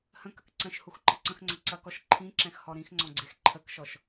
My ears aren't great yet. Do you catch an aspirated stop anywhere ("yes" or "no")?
yes